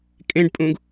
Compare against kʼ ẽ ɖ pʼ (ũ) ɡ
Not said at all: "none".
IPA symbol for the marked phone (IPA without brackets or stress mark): ũ